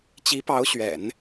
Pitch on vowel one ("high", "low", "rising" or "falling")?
rising